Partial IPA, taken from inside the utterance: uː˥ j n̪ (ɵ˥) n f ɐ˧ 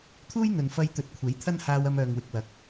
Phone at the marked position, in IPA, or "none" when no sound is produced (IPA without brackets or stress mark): ɵ˨